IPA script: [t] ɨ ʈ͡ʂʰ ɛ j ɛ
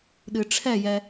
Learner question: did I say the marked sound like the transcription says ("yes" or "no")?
no